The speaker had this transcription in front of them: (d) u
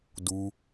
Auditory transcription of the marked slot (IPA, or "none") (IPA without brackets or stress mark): d